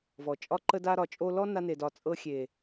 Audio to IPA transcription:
vɔ˨t͡ʃʼɒ˦ǃə˦da˦ ɾɒ˨t͡ʃʼo˧lɔ˦ na˧ne˨dɒ˨t͡sʼɤ˧ xʲe˨

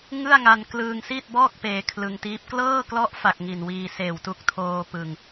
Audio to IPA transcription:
ŋɯ˥˩a̯ŋa˧n klɯː˧ŋsi˥˩t̚bɔː˥˩k̚ peː˧kʰlɯ˧ŋtiː˦˥p̚ klɤː˥˩klɔ˦˥ʔfa˨˩k̚ ŋi˨˩nwiː˧ seː˨˩wtu˦˥k̚tʰoː˧ pɯ˨˩ŋ

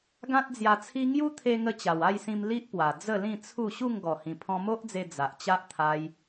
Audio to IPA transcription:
ɡã˦t̚d͡zja˧t͡sʰi˦ ŋju˦t̪ʰe˧ŋə˧ t͡ɕa˨˩wa˥˧jsĩ˧m li˦ʔpwa˨˩ d͡zə˥˧lĩ˥˧t͡sʰu˥˧ ɕu˥˧ŋɡɔ˨˩hĩ˨˩ pʰɔ̃˧mo˦ʔd͡ze˧ d͡za˨ʔt͡ɕa˦ʔ t̪ʰa˧j

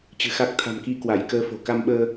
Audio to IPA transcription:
t͡ɕɨ̤˨˩xa˦˥k̚ t̪ʰa̤˨˩mki˧ kwa˧˩jkəː˧fo̤˨˩ ka˧mɓəː˧

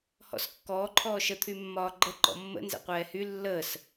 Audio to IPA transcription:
hɔ̰skːɔː ǃʰɔːʃə t̪ʰymːɒːɡ͡ǃə ǃɔ̰mːə̰ nzɛ̰qʷɛːhy lːəːs

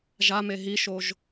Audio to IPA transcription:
ʒa meɦiʃoʒ

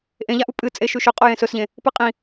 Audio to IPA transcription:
ʔẽʎaʔu pʼɨ t͡sʼeʃʉʃɵ qʼojẽsɵsʎẽ | pɨqʼĩ

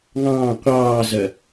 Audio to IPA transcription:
ŋɑ̃ː qʷɑːzɐ

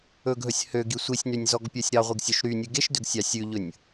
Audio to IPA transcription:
ɵɡɦɵsʲ høɡi sʷisʲnynʲzɔɡpʲœsʲ ɾɑʁʷiɡsʲœʃ ɾynʲʉ ɡeʃdøɡsʲɑ sʲʉʎɵnʲ

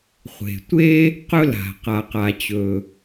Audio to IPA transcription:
χʷe̤˩tʷe˥ | qɵ˥la̤˩ qa˩qa˩t͡ɕɵ˩

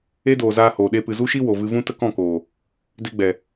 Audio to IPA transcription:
e˦doː˨zaː˧hoː˨ ɗe˧pɨ˨zu˦ʃi˦ wo˨vɨ˧ vũ˦tə˦kɔ̃˦˨koː˨ | de˧ɡ͡bɛ˨

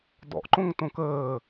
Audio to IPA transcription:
dɔ̰ʔǃõŋtõ kəː

